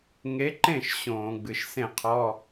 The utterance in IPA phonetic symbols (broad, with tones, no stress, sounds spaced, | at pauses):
ŋ e˨˥ ǃ ẽ˥˩ ʃ ɕ õː˧˩˧ ɡ͡b ɨ˩˧˩ ʃ s ẽ˥˩ qʰ ɔ˧˥˧